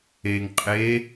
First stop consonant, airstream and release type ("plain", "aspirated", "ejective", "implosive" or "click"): ejective